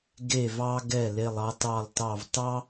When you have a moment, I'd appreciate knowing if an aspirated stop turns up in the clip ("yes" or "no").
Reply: no